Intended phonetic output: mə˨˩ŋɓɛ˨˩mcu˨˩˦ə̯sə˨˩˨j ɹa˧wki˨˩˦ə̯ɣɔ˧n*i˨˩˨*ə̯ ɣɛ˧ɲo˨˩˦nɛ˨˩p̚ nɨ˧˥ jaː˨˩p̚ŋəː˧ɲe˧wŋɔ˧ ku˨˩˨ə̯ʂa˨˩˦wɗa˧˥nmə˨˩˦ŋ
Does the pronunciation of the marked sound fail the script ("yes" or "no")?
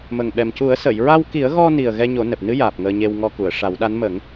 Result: yes